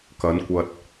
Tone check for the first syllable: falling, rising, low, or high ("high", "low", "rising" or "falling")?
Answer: rising